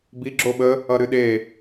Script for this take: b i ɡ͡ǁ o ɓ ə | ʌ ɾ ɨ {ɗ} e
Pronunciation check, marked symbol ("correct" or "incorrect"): correct